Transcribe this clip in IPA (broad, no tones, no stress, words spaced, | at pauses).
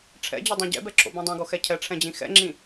ʈ͡ʂʰɛ̰d͡ʑʌdˤɛ̃ ɟɛ̰bɛǁʰo̰bũ dˤõɡoxɛ cʰɛʈ͡ʂʰɛ̃d͡ʑĩ xɛ̰ŋ͡ǁĩ